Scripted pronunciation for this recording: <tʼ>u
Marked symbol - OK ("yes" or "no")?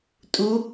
yes